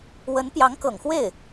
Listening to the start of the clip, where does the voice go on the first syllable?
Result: rising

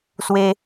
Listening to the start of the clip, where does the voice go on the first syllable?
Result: high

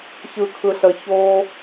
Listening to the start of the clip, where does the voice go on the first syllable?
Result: low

